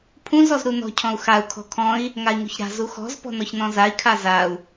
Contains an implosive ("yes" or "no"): no